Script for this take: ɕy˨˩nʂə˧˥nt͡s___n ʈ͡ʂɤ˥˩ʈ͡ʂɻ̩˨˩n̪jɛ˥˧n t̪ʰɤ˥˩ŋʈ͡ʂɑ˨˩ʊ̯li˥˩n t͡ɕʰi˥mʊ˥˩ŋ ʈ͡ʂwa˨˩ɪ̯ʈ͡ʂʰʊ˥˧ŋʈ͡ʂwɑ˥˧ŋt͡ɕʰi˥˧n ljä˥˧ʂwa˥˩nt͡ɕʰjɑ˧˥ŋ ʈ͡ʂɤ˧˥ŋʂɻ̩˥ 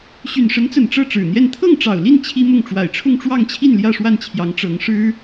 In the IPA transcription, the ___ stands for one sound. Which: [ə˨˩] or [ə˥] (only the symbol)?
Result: ə˨˩